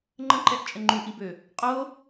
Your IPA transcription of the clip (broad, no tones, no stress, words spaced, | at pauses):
ŋ͡ǃə̃ǃɛʔt͡ʃʼə ŋ͡ǃuʔibø | qʼo